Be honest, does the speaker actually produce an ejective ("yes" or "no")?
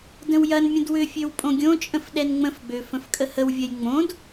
yes